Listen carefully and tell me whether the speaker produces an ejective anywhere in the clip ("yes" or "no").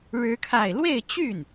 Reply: no